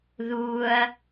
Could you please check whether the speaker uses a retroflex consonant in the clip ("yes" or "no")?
no